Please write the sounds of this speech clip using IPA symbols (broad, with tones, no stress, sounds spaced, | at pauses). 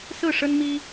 s ɹ̩˥˩ ʂ ə˥ n m i˥